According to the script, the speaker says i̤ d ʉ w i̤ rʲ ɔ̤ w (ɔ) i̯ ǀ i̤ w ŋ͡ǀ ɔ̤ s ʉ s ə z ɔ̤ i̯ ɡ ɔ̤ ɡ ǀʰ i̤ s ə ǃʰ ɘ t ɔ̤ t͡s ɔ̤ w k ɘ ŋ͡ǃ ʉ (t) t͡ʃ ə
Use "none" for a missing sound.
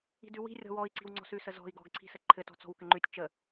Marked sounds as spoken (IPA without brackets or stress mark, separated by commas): ɔ, tʲ